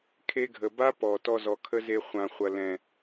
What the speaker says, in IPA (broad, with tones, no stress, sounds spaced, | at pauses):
kʰ e˧ ɡʱ ə˨ b a˦ p ɔ˨ t ɔ˧ z ɔ˨ kʰ ə˦ z e˧ χʷ ã˨ χʷ ɐ˨ l ɛ̃˨